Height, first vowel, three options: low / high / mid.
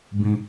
high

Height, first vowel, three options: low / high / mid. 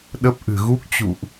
mid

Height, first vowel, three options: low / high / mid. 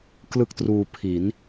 high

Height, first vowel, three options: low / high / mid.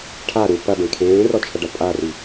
low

